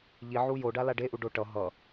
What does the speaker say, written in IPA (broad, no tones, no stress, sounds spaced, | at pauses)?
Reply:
ʎ i ʕ u j o ɖ a l a ɖ e ʔ u ɖ o ʈ ʌ ɦ ʌ